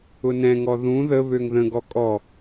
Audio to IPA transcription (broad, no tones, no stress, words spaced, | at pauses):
ʊnɛ̃ŋɔ ðũ ðə βøŋðə̃ɡɔ kʼɔ